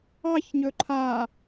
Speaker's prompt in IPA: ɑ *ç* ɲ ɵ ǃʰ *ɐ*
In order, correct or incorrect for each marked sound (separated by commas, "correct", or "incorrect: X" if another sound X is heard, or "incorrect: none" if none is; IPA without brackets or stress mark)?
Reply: correct, incorrect: a